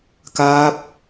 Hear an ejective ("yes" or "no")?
no